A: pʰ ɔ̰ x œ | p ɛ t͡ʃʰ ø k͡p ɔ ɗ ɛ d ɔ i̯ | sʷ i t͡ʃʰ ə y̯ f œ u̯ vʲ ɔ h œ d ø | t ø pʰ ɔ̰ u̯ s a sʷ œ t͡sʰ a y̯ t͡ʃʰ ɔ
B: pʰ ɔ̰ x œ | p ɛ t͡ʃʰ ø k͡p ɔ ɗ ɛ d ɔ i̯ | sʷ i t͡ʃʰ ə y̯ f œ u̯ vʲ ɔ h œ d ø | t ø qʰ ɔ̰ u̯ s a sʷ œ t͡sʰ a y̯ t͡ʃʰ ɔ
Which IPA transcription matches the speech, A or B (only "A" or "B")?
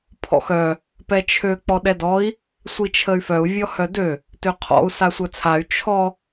B